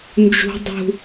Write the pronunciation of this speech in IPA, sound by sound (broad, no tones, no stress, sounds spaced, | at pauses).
n d͡ʒ ṳ dˤ ṳ